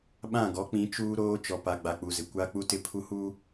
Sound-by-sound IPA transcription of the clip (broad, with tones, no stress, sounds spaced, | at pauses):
ɓ ã˦˨ ɡ ɔ˨˦ k͡p ĩ˨˦ t͡ʃ uː˦ ɾ oː˦ t͡ʃ ɔ˨ p a˨ ɡ͡b a˨ k͡p u˨ z ɪ˨ kʷ a˦ k͡p u˦ t ɪ˦ pʰ u˦ h uː˦